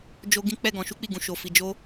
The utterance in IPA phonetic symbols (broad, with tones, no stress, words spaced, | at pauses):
d͡ʒo˦ɡĩ˦ k͡pɛ˦˨ ɡɔ̃˧ʃu˦k͡pi˦˨ɡũ˧ ʃo˧fi˧ d͡ʒo˦